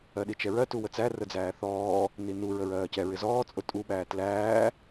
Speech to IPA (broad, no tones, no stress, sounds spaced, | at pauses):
ɜ ɗ i t͡ʃ ɛ ɹ ɜ t u w ə t͡s æ r ə d͡z æː θ ɔː | n i n u ɹ ə ɹ ɜː c ɛ ɹ ɪ z ɔː t͡sʼ ʊ tʼ u ɓ æː t l æː